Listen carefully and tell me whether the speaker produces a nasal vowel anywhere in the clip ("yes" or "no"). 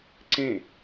yes